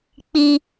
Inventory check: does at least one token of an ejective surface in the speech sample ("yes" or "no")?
no